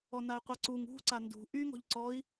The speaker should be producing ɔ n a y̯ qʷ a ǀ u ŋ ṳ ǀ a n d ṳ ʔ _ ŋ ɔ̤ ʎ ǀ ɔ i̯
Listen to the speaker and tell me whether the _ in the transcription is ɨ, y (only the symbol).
y